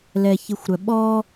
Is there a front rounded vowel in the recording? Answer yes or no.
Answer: yes